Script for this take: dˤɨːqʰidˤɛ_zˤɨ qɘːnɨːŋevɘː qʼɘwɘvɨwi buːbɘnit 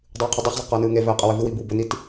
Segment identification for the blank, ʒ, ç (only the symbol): ç